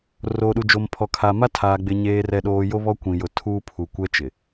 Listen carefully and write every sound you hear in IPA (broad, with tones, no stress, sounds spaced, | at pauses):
r oː˨ ɗ u˨ d͡ʒ o˨ m pʰ ɔ˨ kʰ a˨ m a˦ tʰ aː˨ ɡ͡b ɪ˨ ɲ eː˨ r ɛ˨ ɗ oː˨ j o˦ β ɔ˦ kʷ ĩ˨ j ʊ˨ tʰ uː˦ pʰ u˨ kʷ ɛ˦ t͡ʃ ɪ˨